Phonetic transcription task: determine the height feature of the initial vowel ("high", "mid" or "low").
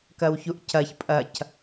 low